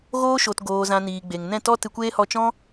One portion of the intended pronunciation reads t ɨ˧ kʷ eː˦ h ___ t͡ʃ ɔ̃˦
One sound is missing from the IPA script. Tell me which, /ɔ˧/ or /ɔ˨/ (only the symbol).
ɔ˧